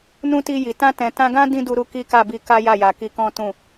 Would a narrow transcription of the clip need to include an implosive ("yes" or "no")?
no